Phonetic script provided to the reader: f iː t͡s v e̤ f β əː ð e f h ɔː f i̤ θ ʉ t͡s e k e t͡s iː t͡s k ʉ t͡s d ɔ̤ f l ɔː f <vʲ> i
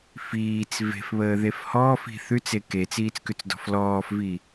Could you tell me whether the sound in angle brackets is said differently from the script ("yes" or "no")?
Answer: yes